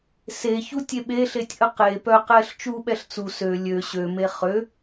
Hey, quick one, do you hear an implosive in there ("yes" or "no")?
yes